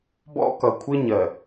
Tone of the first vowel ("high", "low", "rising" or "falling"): high